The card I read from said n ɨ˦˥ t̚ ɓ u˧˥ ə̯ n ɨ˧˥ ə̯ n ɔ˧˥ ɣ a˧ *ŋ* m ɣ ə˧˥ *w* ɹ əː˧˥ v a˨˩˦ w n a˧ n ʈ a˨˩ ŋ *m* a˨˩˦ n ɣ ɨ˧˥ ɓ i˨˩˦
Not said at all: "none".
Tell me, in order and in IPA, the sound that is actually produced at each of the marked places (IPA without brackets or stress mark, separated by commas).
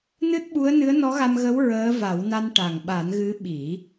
none, w, ɓ